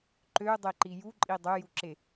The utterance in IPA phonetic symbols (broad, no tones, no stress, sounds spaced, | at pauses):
ǃ ø ʊ̯ dˤ e ǃ i j u ǃʼ i dˤ ø j u ǁ e